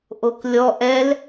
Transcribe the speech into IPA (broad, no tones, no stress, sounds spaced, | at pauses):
ʔ o k lʲ ɔ ʔ ɛ l